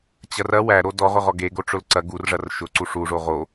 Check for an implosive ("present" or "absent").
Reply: absent